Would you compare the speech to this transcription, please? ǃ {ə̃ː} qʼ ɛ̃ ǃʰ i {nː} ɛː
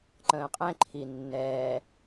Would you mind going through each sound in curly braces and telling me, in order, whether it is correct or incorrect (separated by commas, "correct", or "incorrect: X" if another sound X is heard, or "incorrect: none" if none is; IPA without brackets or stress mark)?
correct, correct